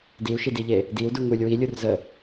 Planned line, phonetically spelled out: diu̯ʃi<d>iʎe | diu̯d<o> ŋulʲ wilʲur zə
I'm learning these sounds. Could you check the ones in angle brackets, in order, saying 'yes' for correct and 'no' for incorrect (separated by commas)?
yes, no